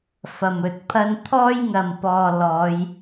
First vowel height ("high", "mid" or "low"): low